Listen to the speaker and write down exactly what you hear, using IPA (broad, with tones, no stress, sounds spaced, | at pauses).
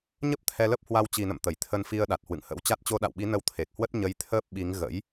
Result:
ɲ ə˦˥ p̚ t̪ʰ ɛ˧ l ə˦˥ p̚ h w a˧ w t͡ɕ i˨˩ n ə̰˧˨ m t̪ ə˧˩ j t̪ʰ ə˧ n f i˧ ə̯ ɗ a˨˩ t̚ h w ɨ̰˧˨ ŋ h ə̰˧˥ w t͡ɕ a˦˥ t̚ t͡ɕ o˧ ɗ a̰˧˨ w ɓ i˨˦ n ə˨˦ w t̪ʰ e˨˩ k̚ h w ə˦˥ t̚ ɲ ə˧ j t̪ʰ əː˦˥ p̚ ɓ i˨˦ ŋ ɣ ə̰˧˥ j